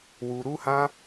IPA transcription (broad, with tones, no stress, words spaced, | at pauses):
wu˧ɾu˦hã˦